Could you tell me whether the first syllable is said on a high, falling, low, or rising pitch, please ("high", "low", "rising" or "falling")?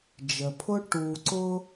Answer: low